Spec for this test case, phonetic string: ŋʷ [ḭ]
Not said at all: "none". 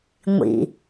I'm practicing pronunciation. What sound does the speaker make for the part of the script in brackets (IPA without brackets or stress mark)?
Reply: ḭ